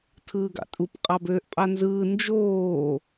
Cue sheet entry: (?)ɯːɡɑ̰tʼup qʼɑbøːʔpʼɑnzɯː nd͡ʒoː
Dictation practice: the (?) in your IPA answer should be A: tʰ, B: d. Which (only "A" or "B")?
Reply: A